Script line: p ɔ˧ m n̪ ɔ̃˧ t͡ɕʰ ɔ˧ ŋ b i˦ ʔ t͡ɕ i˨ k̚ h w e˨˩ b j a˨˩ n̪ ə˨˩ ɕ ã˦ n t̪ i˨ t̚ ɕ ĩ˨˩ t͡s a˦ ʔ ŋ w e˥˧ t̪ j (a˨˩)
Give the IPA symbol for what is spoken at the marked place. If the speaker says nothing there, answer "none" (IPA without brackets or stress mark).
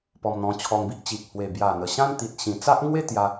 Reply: a˧